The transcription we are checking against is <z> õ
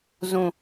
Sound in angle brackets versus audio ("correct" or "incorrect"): correct